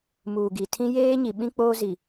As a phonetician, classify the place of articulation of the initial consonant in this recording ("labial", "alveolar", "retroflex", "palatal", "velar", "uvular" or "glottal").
labial